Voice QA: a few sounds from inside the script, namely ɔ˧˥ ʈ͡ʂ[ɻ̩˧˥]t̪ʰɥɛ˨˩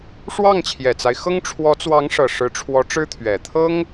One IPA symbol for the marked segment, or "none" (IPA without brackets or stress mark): ɻ̩˥